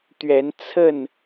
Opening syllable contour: rising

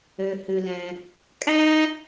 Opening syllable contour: low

